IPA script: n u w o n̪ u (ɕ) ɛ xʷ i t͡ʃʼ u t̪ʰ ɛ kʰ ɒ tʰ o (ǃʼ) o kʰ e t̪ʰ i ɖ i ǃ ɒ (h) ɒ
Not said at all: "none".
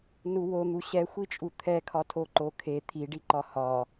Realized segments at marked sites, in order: ɕ, ǃ, h

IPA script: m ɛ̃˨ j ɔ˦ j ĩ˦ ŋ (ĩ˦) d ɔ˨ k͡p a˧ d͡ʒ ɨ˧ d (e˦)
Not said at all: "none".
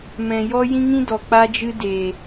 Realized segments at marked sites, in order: ĩ˦, e˨

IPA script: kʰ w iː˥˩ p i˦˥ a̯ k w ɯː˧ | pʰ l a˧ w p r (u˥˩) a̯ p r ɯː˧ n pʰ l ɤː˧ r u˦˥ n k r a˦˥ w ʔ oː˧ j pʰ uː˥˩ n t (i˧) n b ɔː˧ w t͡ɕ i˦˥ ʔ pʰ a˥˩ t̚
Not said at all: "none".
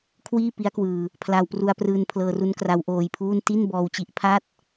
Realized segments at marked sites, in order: u˧, i˥˩

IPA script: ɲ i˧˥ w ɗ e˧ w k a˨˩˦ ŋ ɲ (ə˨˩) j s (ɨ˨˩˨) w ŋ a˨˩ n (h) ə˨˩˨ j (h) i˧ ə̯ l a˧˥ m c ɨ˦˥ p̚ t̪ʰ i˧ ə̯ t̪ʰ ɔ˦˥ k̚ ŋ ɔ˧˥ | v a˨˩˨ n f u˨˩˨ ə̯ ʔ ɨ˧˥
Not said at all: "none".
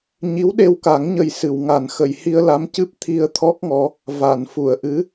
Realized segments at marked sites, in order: ə˨˩, ɨ˨˩˨, x, h

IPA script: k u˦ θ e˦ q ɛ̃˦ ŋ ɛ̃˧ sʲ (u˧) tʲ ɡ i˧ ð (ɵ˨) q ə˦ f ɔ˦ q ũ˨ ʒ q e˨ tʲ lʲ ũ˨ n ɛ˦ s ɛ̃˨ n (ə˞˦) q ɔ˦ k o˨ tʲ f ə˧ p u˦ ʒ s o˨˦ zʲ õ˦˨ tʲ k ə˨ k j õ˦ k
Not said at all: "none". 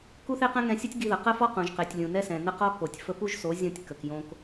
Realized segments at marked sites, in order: u˦, ə˨, ə˦

